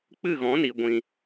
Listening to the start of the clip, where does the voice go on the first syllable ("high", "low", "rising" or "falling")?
falling